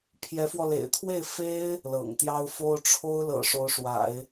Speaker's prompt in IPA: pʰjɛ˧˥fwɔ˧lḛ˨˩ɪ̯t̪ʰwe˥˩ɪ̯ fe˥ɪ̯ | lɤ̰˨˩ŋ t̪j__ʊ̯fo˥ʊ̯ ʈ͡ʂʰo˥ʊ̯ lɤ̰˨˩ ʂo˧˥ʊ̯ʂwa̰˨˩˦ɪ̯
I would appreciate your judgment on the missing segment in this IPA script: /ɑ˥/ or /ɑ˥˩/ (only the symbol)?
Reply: ɑ˥